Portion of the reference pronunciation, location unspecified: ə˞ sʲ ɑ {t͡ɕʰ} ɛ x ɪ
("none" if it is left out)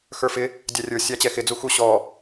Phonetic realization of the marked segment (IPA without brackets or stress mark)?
t͡ɕ